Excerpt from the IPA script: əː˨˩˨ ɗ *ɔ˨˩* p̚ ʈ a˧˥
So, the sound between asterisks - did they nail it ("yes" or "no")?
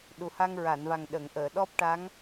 no